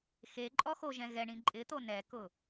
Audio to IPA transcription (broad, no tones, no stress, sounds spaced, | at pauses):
x e ǃʼ ɔ x o ʒ ɛ̃ ɣ ɛ ɳ ĩ ǃʼ ɪ t̪ o n ɛ k ʊ